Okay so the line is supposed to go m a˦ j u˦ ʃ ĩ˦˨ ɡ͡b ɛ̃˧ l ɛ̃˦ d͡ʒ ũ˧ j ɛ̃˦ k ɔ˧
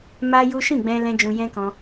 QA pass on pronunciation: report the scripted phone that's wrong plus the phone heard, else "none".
ɔ˧ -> ɔ̃˧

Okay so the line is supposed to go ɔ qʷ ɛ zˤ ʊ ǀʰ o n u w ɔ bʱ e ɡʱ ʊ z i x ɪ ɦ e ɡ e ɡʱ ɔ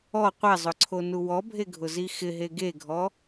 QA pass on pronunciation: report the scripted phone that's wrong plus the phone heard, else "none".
none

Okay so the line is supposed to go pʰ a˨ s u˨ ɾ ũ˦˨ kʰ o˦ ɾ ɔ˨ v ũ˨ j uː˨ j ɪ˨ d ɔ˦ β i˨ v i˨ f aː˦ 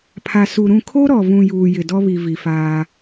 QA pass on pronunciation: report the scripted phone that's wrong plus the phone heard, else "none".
none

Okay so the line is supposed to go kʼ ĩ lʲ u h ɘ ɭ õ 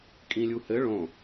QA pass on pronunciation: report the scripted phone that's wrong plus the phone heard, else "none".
none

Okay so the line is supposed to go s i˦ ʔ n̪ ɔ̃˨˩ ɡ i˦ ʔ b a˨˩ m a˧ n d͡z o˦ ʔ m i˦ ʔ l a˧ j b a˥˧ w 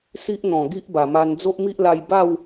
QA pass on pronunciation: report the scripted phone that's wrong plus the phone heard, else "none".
none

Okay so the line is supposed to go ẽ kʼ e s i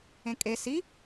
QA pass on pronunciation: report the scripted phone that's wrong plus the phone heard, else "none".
none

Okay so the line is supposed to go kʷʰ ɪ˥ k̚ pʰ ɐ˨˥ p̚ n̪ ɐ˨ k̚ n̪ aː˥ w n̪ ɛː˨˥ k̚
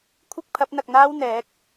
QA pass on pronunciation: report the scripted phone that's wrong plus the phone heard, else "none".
none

